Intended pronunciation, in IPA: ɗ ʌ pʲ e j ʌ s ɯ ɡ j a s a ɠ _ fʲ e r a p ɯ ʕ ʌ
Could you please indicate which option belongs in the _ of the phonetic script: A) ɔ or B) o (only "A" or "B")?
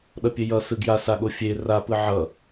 B